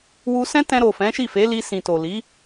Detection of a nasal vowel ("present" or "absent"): present